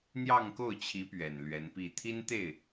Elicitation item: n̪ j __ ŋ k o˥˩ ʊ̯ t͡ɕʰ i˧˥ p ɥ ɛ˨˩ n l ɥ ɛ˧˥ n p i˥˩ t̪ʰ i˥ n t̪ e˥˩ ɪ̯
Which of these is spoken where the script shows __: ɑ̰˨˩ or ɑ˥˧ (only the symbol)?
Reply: ɑ˥˧